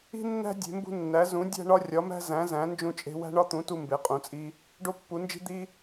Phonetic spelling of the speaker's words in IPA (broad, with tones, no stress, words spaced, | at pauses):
i̤˦nːæ̤˦ dʲe̤˨˦mbṳ˦nːæ˨˦ zũ˨˦ dʲæ̤˦ɳɒ˦ rʲɒ˨˦mæ̤˦ zæ̃˨˦zæ̃˨˦ nd͡ʒũ˦t͡ʃʼe̤˦ wæ̤˦ɳɒ˦t̪ũ˨˦ tu˦mbe˨˦qʼũ˨˦t͡sʼi˦ | ɖo˦pːu˨˦nd͡ʒi̤˦ d̪i˦